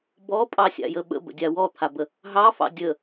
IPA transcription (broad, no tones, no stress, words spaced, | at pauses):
bɔpʼɑsʲa̰jə ɓə̰bə̰dʲa wɔt̪ʰabə | ɦɑfɑ̰ dʲə